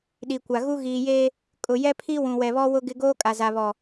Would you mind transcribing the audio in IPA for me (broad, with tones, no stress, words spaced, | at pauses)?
ɗi˨kʷa˨ɣu˦ ɣiː˨je˦ | kʼʊ˨jɛ˦pʰi˦ wũ˨wɛ˨βɔ˦ wʊ˦ɡɪ˦ ɡoː˦kʼa˨za˨βɔ˨